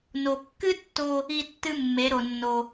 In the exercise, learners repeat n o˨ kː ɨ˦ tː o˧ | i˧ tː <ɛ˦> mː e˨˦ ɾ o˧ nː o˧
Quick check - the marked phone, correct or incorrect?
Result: incorrect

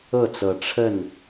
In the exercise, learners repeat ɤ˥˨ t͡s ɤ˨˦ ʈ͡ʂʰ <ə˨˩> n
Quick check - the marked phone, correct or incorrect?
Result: incorrect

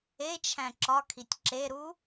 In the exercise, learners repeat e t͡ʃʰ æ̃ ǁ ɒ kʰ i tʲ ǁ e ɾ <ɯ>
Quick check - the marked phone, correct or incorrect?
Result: incorrect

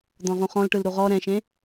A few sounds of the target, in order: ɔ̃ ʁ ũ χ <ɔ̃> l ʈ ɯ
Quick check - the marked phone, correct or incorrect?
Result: correct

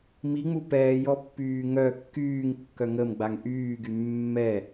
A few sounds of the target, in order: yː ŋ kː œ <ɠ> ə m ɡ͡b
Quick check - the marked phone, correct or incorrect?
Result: incorrect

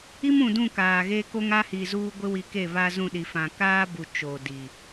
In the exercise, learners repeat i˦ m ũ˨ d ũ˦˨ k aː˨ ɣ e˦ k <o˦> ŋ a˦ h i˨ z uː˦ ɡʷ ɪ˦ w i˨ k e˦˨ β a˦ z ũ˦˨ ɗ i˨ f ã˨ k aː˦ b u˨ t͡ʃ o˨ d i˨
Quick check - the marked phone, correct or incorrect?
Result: correct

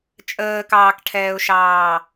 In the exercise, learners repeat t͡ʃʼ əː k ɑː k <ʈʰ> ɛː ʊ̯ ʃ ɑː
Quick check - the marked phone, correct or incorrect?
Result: correct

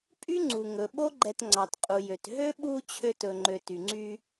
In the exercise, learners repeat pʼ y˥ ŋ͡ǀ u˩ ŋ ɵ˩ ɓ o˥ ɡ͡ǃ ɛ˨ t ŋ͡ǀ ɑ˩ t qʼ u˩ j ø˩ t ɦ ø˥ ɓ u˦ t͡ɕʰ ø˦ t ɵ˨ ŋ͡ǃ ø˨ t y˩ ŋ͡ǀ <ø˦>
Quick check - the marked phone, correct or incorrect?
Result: incorrect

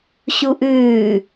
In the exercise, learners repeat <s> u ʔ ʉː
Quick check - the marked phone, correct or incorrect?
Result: incorrect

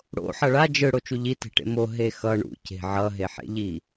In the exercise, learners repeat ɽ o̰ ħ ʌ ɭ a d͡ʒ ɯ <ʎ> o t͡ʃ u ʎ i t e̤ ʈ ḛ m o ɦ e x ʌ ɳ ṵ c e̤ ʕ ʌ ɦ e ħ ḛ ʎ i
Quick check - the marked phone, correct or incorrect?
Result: incorrect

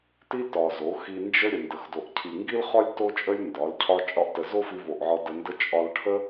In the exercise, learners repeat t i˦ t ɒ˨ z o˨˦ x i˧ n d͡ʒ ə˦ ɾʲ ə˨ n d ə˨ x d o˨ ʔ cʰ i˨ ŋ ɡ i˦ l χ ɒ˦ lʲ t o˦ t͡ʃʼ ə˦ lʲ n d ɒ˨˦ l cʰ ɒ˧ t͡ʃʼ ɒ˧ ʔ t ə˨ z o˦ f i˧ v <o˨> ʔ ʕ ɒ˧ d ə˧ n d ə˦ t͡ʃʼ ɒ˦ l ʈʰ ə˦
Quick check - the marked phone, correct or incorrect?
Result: correct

